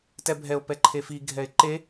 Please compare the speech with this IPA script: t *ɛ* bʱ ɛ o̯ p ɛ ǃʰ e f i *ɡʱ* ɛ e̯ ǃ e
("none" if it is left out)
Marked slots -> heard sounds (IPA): ɛ, ɡʱ

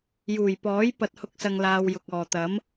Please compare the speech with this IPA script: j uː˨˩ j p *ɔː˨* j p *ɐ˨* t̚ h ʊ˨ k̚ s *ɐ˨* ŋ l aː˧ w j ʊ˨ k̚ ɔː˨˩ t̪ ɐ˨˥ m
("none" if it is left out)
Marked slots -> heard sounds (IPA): ɔː˨˥, ɐ˨, ɐ˨

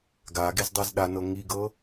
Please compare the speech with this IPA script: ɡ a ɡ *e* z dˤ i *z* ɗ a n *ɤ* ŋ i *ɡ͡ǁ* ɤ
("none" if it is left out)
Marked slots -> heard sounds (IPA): e, z, ɤ, ɡ

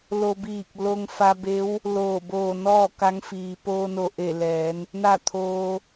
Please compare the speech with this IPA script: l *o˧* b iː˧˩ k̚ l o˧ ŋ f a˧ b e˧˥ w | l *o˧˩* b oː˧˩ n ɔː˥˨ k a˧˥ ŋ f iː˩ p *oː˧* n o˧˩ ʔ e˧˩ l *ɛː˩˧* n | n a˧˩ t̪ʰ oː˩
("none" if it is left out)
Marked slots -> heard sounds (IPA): o˧, oː˧˩, oː˧, ɛː˩˧

